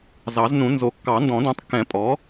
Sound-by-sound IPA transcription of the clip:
zɑ˨˩˦znũ˨˩˦ nzo˨˩˦kːɑ˨˩˦ ndɔ̃˨˩˦dõ˩˥tˤkːɛ̃˨˩˦ pʼɔ˩˥

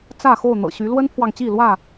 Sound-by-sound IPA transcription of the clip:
t͡sä˥˨ xo˥˨ʊ̯n̪ɤ̰˨˩ɕy˨˦ lwə˦npʰwɑ˨ŋt͡ɕi˥˨lwä˥˨

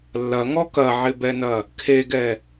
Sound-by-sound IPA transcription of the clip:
lːɐŋɔ kɐʕɪbɛnɐ | kʰeɡɛ

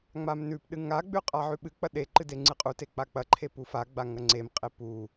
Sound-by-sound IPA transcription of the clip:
ŋ͡mamnʉpɗɨ ŋaɡ͡bʉ qʼaʕʉɓɨk͡pɐ ɗeǃɨ deŋ͡ǀɨqʼute k͡pak͡pɐǃʰe pufaɡ͡ba ŋɐŋ͡ǀemqʼe pu

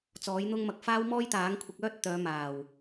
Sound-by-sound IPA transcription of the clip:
t͡sɔː˨˥jn̪ʊ˥ŋmɐ˧k̚ faː˥wmɔː˥jt̪aː˨˥ŋ kʷʰɪ˧k̚œː˥t̚ t̪œː˨˧maː˨˩w

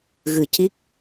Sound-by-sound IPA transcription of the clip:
ɣɨ˨˩ ci˦˥k̚

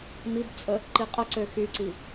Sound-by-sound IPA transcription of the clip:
mibt͡sʼə | ǃiqʼəǀø xyǀi

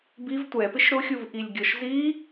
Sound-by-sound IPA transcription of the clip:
biv tʷɛpɪʃ ɾʊxʲuvʔilʲ ɡʲɔʃzi

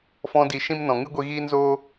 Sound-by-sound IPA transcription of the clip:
fɔ̃˧di˨ ʃĩ˦mnɔ̃˨ ŋɨ˦ɡʷi˧ɣiː˦nzoː˦

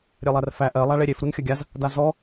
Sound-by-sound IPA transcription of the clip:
ɾʲelˠærfæ ʔɜlˠa ɭeɾʲef ɾunxʲɐɡʲaz | dazɔ

